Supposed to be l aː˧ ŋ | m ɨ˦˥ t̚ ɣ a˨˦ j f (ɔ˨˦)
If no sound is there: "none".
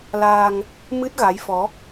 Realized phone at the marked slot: ɔ˨˦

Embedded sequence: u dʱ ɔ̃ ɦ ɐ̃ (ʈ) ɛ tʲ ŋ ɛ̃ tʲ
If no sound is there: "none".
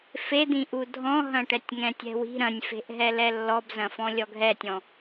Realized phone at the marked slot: ʈ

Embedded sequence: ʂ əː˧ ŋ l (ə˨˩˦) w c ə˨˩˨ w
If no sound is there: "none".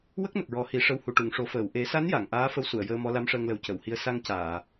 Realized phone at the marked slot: ə˨˩˦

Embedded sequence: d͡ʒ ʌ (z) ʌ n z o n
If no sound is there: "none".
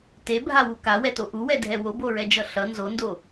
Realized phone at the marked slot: ɬ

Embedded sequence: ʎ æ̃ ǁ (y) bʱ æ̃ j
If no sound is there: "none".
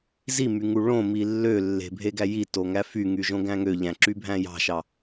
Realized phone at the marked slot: y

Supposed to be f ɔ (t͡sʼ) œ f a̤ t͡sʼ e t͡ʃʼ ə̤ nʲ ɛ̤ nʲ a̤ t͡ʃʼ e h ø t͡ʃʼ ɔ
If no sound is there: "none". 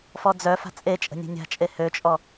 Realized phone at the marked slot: d͡z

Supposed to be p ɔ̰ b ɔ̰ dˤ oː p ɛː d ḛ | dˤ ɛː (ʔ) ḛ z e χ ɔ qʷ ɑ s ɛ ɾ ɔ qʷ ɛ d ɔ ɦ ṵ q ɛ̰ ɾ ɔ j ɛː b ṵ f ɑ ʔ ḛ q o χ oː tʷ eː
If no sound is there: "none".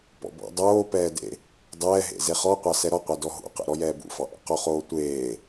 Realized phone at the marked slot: ɦ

